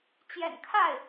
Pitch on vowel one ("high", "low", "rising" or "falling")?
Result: low